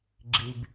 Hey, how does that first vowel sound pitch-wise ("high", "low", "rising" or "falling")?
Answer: low